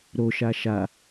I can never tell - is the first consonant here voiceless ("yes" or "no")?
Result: no